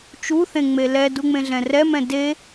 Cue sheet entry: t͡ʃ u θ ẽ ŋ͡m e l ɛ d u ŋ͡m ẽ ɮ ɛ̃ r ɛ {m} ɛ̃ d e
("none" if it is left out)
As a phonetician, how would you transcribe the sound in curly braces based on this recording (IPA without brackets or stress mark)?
m